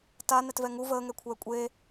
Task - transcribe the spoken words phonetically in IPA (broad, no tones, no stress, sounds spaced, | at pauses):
t a n ɛ t v ɛ ŋ u v əː ŋ ɛ kʷʰ ɛː kʷʼ e